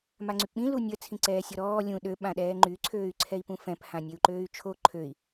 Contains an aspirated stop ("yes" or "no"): yes